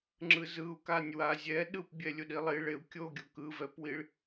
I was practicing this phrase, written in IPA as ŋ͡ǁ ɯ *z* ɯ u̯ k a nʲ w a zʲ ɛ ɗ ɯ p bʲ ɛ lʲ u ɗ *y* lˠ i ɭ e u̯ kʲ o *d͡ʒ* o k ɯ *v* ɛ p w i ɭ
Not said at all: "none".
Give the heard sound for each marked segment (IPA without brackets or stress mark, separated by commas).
z, i, ɡʲ, v